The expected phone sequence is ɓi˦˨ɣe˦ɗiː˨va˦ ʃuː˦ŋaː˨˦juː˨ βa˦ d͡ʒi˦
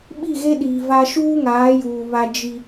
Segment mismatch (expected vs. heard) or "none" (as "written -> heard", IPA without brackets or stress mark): none